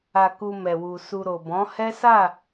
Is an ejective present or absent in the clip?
absent